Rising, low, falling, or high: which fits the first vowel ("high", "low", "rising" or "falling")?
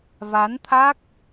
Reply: rising